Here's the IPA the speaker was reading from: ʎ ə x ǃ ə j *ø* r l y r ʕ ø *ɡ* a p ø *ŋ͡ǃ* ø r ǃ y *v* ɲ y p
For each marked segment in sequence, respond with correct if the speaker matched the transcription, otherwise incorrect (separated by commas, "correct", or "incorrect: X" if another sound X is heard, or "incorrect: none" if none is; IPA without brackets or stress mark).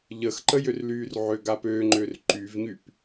correct, correct, correct, correct